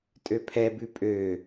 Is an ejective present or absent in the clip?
present